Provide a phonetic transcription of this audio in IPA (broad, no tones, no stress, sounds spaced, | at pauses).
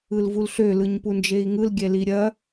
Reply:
ɯ l v u l ɬ ø l ɯ ɲ p u n d͡ʒ e i̯ ŋ ɯ l ɡʲ ɛ l i ɾʲ ɐ